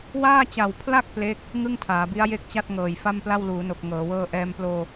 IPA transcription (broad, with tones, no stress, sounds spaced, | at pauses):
w aː˥˩ t͡ɕ a˨˩ w pʰ l a˥˩ k̚ p l e˦˥ k̚ | ŋ ɯ˥˩ ŋ tʰ aː˩˦ b i˦˥ a̯ j e˥˩ k̚ t͡ɕ a˥˩ t̚ ŋ ɤː˨˩ j f a˥˩ m p l a˥˩ w l uː˩˦ n o˨˩ k̚ ŋ ɤː˩˦ w ɤː˥˩ ʔ ɛː˧ m p l oː˧